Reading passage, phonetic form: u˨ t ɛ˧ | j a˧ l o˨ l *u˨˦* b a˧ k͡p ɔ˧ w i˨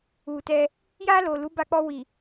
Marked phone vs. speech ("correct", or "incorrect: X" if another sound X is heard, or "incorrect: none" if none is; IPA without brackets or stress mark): correct